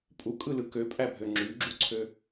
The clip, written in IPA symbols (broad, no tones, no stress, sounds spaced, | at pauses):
pʼ u kʼ ɯ l ɯ k ø pʼ æ bʱ ø ŋ͡ǁ y ɡ͡ǁ u ǀʰ ø